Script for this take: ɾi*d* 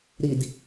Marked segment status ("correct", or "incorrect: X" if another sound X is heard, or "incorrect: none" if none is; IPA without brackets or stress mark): correct